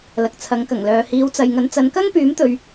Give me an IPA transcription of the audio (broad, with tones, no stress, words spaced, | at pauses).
lɐ˨k̚t͡sʰɐ˨˥ŋkɐ˨˩ŋlœː˨ hiː˨˧wt͡sɐ˨jŋɐ˨˧n t͡sɐ˨˧nkɐ˥ŋpyː˨˥mt̪ɵ˨ɥ